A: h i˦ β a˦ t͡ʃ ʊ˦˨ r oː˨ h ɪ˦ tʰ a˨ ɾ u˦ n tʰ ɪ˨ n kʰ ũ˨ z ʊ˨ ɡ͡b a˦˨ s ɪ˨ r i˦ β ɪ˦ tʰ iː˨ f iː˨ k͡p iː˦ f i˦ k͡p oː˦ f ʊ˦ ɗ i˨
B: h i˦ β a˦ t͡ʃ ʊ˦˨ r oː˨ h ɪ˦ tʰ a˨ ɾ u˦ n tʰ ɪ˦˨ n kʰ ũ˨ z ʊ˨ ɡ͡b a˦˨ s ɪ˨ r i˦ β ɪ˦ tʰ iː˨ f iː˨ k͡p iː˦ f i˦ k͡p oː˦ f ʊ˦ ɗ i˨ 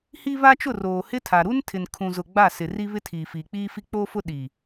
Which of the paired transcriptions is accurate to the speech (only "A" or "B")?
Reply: A